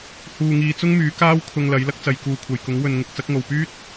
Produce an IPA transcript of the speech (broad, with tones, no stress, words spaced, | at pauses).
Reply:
huː˨ŋiː˨ t͡sʊ˥ŋmyː˨˥kaː˥w kʰʊ˧ŋlɐ˨˥j lɐ˥k̚t͡sɐ˨˧j kuː˨kʷʰɐ˨jkʊ˨˥ŋ wɵ˨n ŋɪ˧k̚ t͡sɐ˨˥k̚ŋo˨wpyː˥t̚